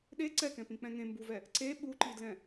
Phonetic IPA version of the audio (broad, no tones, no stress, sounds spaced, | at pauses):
ɗ e ǀ ɛ k ɛ̃ p ĩ k͡p ɛ̃ ŋ ẽ m b u v ɛ | ǀ e ɓ u ǃ i d l ɛ̃